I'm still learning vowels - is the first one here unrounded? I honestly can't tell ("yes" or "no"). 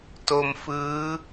no